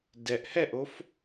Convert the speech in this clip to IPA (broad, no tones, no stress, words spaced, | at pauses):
dɛʔ hɛʔof